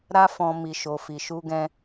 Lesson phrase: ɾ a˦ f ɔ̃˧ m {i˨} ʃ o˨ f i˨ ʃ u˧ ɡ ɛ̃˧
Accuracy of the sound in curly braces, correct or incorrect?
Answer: correct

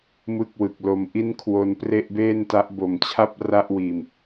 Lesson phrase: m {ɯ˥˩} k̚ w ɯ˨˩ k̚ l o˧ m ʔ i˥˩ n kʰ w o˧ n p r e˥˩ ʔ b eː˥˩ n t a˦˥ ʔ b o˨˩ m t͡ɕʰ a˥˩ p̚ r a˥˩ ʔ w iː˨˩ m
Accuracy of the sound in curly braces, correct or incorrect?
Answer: correct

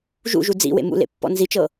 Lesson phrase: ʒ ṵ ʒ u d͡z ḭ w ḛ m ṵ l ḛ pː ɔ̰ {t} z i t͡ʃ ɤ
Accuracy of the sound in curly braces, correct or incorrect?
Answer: incorrect: n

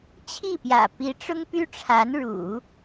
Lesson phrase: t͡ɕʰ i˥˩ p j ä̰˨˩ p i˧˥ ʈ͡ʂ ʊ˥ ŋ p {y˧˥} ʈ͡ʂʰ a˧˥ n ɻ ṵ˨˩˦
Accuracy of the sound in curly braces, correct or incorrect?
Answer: incorrect: y˥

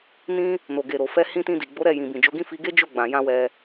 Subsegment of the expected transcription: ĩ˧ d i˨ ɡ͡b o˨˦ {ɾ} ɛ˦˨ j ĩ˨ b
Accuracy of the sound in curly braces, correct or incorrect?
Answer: correct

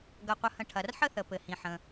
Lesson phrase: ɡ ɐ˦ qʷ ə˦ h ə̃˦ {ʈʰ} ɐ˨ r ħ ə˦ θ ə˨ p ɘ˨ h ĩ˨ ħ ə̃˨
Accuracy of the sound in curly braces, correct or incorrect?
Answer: correct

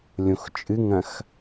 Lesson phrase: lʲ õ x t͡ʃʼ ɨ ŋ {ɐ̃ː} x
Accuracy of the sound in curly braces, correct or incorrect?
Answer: incorrect: ɐ̃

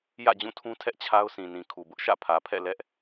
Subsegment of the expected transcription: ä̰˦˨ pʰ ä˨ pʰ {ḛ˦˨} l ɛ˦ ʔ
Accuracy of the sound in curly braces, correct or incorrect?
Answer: incorrect: ɛ̰˦˨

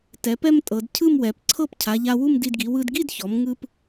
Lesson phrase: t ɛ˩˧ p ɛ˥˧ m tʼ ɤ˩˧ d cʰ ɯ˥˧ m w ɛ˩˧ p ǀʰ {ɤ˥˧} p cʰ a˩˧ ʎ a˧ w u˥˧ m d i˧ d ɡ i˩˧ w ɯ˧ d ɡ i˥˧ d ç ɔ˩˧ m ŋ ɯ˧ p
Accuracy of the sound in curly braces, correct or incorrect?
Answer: correct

